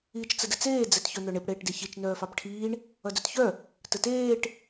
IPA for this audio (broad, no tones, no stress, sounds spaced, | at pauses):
iː t͡ʃ t͡s ə d ə t͡s eː d͡z ɛ t ç œ n̪ œ ɳ e p ɽ eː ʈ d e ç i t͡ʃ n œː f ɑ p ʈʰ iː ɳ | ʌ d œ t ç œ | t ə t eː ʈ